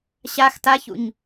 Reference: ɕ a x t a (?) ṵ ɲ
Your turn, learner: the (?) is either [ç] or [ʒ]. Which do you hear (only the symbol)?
ç